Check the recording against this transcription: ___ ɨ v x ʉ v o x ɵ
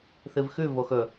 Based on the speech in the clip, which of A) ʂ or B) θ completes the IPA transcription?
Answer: B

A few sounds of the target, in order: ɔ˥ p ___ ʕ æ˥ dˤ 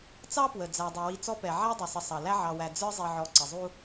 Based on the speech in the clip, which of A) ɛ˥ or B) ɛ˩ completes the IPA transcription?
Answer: B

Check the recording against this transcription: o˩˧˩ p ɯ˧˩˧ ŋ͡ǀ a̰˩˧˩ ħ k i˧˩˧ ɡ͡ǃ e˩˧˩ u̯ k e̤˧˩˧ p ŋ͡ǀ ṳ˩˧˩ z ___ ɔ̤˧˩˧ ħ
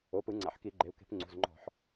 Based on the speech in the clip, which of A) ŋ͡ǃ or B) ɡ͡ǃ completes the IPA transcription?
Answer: A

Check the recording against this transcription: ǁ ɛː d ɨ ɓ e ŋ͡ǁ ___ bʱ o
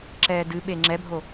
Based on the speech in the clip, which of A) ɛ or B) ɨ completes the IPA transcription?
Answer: A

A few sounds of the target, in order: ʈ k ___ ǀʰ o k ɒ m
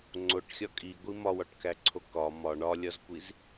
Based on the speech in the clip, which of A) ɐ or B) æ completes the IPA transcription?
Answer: B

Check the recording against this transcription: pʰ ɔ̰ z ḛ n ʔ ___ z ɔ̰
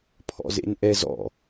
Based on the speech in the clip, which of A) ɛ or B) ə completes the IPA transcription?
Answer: A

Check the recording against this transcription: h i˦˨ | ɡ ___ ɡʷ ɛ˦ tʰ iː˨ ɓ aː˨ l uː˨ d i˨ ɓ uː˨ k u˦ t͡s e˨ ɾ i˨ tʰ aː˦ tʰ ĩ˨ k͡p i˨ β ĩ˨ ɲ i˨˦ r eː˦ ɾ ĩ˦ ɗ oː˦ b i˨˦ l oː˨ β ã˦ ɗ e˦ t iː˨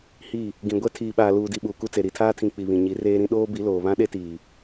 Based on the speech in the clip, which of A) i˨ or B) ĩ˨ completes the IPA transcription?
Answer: B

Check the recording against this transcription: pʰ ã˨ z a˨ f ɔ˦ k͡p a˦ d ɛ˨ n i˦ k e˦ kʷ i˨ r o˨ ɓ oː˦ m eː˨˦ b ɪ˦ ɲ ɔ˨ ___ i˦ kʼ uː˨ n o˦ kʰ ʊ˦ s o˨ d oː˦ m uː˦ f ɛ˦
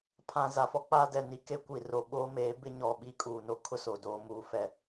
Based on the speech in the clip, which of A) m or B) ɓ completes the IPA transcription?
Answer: B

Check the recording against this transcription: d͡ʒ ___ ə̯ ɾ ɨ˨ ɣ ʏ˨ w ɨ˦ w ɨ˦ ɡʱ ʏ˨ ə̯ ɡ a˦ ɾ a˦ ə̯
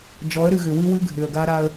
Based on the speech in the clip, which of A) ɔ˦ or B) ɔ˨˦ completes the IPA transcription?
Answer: B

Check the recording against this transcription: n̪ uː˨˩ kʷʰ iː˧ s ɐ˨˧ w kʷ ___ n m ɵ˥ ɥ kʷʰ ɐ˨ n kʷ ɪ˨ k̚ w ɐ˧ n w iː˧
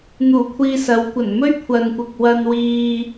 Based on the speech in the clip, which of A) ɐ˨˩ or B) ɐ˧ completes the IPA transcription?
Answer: A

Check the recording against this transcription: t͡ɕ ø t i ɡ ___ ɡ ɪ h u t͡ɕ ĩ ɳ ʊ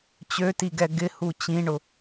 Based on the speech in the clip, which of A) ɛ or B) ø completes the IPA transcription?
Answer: A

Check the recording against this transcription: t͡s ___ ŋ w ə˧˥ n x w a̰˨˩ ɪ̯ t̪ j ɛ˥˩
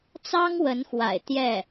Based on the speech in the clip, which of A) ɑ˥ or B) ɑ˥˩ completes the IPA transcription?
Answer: A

